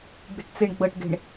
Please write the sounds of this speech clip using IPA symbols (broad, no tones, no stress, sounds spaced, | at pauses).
ɡ͡b i̤ ʈ t͡s e ɳ ɡ͡b ɤ ʈ ɡ e̤ ɳ